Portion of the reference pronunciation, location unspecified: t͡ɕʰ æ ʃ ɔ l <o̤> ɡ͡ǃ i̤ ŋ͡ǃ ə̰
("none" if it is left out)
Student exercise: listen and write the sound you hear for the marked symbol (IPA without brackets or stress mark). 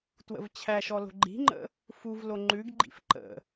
o̤